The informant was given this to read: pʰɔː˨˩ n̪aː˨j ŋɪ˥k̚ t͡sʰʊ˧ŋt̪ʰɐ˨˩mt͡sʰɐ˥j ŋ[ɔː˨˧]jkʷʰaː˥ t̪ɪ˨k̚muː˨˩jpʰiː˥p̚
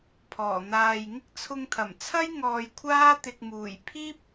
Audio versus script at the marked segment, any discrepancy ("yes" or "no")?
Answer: yes